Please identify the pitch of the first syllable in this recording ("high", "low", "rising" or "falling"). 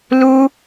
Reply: high